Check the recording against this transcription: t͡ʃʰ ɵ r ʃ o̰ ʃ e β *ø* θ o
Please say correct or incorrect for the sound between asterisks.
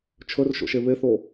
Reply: incorrect